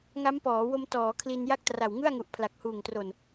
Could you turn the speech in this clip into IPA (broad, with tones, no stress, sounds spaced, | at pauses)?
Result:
ŋ a˦˥ m p ɔː˩˦ w o˧ m t ɔː˩˦ kʰ l i˧ n j a˥˩ k̚ t r a˨˩ w ŋ ɯ˥˩ a̯ ŋ u˨˩ ʔ pʰ l a˨˩ k̚ h uː˨˩ ŋ t r o˨˩ n